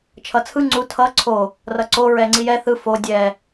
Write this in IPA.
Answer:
t͡ʃʰ ʌ t͡sʰ ɯ ŋ͡ǀ u tʰ ʌ ǀʰ o | r ʌ ǀ o ɹ ɛ ŋ͡ǀ i j ɛ θ ɯ f o dʲ ɛ

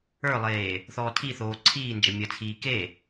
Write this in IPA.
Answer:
ə˞ lˠ eː | θ ɔː tʰ i θ oː ǀʰ iː n d͡ʒ ɐ mʲ ɐ t͡sʰ iː k e

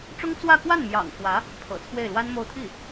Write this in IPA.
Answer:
ʈ͡ʂ ʊ˥ ŋ t͡s w ä˥˧ k w a˥˩ n m j ɑ̰˨˩ ŋ x w ä˧˥ | pʰ ɤ̰˨˩ t͡sʰ w e˥˩ ɪ̯ l w a˥ n m o˥˧ ʊ̯ t̪ʰ i˥˩

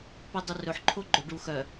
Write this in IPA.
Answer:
p i dˤ i r ɵ ħ ǃʰ o ɡ͡ǃ ɵ ɖ u x œ

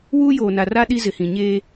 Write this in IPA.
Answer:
w uː˦ j oː˨ n a˨ r a˦ ɗ i˦ z ɪ˨ h ĩ˨ ɲ eː˦

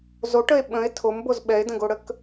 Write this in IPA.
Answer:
z o ʈ ə e̯ ɓ ə̃ e̯ tʰ o m b o z ɓ ɛ e̯ d ə̃ ɡ o ɽ ə k

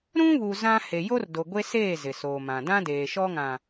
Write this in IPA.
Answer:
ɾ ũ˦ β u˨ z ã˦ h e˨ j o˦ r d o˨ ɡʷ e˦ s eː˦˨ z ɪ˨ s oː˨ m ã˨ d ã˦ d eː˨ ʃ ɔ˦ ŋ ã˨

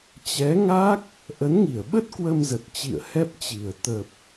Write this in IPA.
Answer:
t͡ɕ ɛ˨˦ ŋ a˦˥ k̚ | ʔ ə˨˦ n ŋ i˧˩ ə̯ ɓ ə˦˥ t̚ k w ə˧ m z ə˨˩ t̚ t͡ɕ ḭ˧˨ ə̯ h ɛ˦˥ p̚ t͡ɕ i˨˩ ə̯ t̪ ə˨˩ p̚

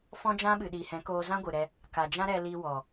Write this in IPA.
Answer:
f ɔ̃˦ d͡ʒ ã˦ ɓ ɨ˨ ɗ iː˨ h ɛ̃˨˦ k oː˧ z ã˦ ɡʷ ɨ˨ ɾ ɛ˧ | k a˨ d͡ʒ ã˦ ɾ ɛ˧ l i˧ w ɔ˨

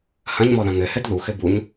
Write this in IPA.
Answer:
h ɐ̃ ɲ m ɔ ð ɐ̃ ŋ ɘ h ɘ d ð u x ɘ b u ɲ

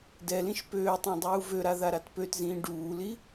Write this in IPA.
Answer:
d ɛ l ĩ ʃ p øː tˤ ã dˤ uː v ø ɾ a ð a ɾ a t p ø t z ĩː ɖ uː l i

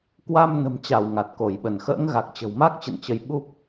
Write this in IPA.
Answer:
k w a˧ m n ə̤˨˩ m t͡ɕ a˧˩ w ŋ a˨˩ t̚ k o˧˩ j ɓ ə˧˩ n x ə̰ː˧˥ ŋ ɣ a˨˩ k̚ t͡ɕ ə̤˨˩ w m a˦˥ k̚ t͡ɕ ə̰˧˨ n t͡ɕ ə˨˦ j ɓ u˦˥ p̚

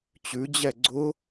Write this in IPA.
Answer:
t͡ɕ ʉ d͡ʑ ɛ ɡ͡ǀ ʊ

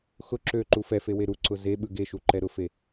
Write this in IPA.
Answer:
x ʊ ǁ ø ǃ u f ɛ f e w e ɾ u ǀ ʊ z e ɓ ɯ ɡ e ʃ u ǃ ɛ ɾ ʊ f e

